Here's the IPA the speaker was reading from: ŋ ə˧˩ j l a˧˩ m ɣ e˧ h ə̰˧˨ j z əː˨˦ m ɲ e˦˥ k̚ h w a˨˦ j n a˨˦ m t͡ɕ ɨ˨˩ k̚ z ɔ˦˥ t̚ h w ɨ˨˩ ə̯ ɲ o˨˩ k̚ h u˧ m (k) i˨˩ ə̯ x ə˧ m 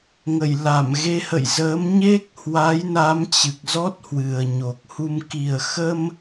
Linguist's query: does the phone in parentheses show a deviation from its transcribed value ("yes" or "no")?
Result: no